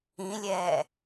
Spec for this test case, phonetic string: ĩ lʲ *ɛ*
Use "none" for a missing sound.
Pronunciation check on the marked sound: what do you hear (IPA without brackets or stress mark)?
ɛː